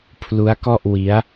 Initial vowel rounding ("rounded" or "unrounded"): rounded